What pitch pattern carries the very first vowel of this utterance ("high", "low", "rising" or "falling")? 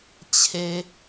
low